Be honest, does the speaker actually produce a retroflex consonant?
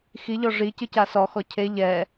yes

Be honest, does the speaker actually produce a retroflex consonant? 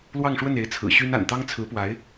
yes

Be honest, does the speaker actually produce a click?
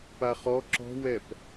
yes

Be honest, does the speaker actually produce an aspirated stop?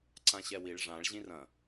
no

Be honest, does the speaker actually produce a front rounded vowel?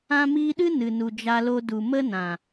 no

